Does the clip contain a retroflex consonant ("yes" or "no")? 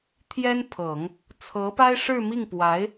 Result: yes